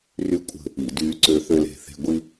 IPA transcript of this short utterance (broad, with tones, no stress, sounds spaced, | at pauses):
r y˦ kʷʼ ə̤˦˨ | i˧˩˧ d yː˦ ǀ ø˦ θ ø˦ l e̤˦˨ θ e̤˦ ɡʷ i˦